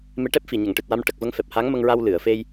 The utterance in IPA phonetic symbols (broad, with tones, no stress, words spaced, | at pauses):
me˧˥ʈɛ˦˥p̚fi˨˩ ɲə˨˩˨ŋʈɨ˨˩t̚wa˧m ʈə˨˩k̚və˧ŋ fɛ˨˩p̚ha˧˥ŋmə˧ŋɹa˧w lɨ˨˩˨ə̯fe˧j